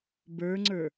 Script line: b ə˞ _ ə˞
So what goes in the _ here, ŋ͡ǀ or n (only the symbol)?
ŋ͡ǀ